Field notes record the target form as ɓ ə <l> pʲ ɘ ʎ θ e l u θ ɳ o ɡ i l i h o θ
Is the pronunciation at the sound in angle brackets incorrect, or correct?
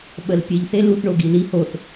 correct